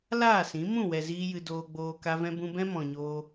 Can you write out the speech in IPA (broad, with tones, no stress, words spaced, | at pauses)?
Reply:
laː˦˨sĩ˨˦ mũ˦˨wɛ˨ ziː˦jɨ˧ doː˧ɡ͡boː˧ ka˦vɛ̃˦bũ˦ bɛ̃˦mɔ̃˨ɲoː˧